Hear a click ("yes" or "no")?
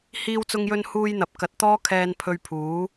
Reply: no